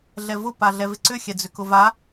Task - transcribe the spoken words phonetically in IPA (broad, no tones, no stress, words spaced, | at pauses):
ɮɛvʊ paɮɛvɪǀʏ xʲɛd͡zʏkʊva